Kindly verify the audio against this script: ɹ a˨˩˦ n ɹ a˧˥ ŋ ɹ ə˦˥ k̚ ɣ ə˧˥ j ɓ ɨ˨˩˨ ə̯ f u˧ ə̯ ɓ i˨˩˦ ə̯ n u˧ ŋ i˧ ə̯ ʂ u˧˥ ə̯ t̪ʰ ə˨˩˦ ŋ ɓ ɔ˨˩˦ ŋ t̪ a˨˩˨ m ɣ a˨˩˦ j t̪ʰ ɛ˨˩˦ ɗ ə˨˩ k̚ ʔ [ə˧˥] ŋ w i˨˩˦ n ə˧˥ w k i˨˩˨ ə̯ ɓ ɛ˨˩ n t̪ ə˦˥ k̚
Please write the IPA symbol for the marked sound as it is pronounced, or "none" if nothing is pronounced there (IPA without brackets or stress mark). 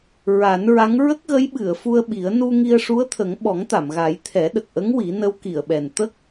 ə˧˥